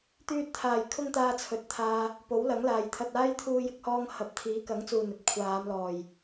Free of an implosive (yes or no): yes